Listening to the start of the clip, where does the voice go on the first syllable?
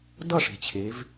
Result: falling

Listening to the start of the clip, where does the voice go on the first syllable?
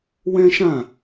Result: high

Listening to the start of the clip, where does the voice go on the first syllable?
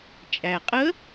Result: low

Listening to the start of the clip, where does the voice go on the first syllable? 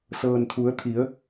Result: low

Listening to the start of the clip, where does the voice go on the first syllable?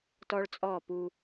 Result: high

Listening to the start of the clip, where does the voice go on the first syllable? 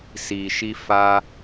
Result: low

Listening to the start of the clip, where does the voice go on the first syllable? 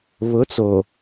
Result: rising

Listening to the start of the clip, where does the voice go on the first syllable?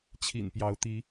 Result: low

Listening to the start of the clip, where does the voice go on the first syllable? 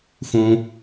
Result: low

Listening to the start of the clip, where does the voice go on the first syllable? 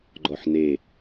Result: low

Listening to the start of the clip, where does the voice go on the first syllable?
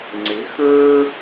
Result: rising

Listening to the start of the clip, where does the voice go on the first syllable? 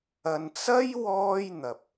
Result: low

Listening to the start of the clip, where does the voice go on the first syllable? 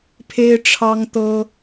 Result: high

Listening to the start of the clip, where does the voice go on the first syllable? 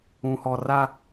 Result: low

